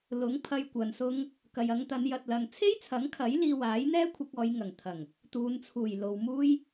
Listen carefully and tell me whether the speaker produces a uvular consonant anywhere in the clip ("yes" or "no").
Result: no